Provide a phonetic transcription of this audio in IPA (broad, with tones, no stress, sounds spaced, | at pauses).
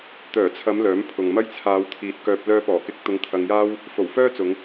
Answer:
t̪ œː˨˩ t͡sʰ ɐ˨˧ m l œː˨˥ m pʰ ʊ˨ ŋ m ɐ˥ j t͡sʰ aː˨˧ w t̪ʰ iː˨˥ t̚ k œː˧ p̚ l œː˧ p ɔː˨˩ k ɪ˧ k̚ t̪ ʊ˧ ŋ t̪ʰ ɐ˧ ŋ j aː˥ w | f o˨˩ w f œː˥ t͡s ʊ˨˧ ŋ